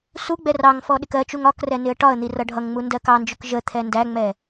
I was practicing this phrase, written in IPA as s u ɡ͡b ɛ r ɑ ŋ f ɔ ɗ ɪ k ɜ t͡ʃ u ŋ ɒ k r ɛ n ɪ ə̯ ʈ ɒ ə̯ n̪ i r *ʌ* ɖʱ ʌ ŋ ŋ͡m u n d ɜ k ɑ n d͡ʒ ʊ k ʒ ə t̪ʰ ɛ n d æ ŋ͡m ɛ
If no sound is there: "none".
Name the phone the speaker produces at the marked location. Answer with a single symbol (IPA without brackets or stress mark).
ʌ